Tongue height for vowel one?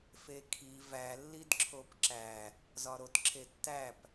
mid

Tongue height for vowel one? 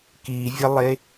high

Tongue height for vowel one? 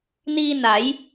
high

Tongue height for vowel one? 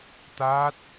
low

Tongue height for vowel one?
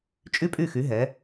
high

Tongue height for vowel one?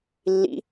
high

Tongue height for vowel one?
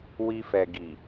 high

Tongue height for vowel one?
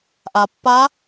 low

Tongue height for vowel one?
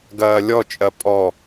low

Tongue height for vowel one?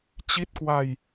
high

